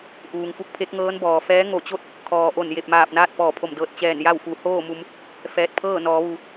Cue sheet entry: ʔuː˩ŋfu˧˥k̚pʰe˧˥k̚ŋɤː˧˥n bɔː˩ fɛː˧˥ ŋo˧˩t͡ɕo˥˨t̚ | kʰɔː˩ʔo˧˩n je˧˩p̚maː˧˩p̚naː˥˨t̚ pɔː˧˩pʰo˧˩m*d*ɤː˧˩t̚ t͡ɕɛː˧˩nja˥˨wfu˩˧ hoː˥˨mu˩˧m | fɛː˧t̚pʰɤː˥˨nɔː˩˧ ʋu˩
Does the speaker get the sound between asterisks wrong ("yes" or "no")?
no